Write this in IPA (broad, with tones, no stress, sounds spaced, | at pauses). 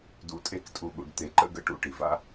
d ṵ˨ tʼ e˧ k tʼ u˨ ɠ ṵ˨ ɖ t̪ e˨ ǃ ə̰˦ ɡ ə̰˧ ʈ ṵ˧ ʈ i˨ v a̰˦